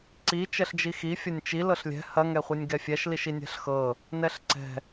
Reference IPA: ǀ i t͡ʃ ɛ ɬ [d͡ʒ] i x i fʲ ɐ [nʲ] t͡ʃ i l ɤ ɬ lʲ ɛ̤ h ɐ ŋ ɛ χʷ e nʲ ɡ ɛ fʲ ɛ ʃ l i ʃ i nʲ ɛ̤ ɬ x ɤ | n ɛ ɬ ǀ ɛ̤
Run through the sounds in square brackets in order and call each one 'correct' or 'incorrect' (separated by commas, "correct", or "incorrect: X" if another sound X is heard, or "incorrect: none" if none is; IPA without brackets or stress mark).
correct, correct